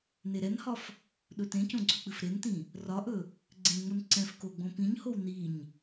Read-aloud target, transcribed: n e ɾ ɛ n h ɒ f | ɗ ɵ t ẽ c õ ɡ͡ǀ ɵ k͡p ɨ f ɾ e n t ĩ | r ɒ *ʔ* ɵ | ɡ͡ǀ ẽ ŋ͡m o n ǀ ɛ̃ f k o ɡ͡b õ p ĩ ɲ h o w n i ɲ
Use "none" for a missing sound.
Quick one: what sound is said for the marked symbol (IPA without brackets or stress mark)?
ʔ